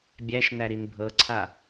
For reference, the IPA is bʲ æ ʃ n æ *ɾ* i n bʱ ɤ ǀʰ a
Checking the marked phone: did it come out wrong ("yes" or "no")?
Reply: no